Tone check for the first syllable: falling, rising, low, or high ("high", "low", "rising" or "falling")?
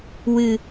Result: low